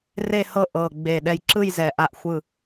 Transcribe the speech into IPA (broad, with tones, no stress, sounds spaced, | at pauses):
r e˦˨ h ɤ˦˨ ʔ ɤ˨˩ ɡ͡b e˨˩ ɗ ɛ˨˩ j ǁ ɯ˦˨ j z ɛ˨˩ ʔ a˦˨ ʔ xʷ ɯ˦˨